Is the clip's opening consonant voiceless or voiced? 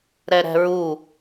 voiced